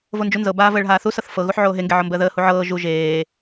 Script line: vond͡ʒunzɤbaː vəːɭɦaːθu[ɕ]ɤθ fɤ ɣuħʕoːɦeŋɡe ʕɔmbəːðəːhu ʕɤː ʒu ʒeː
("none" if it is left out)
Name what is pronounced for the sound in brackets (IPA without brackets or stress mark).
s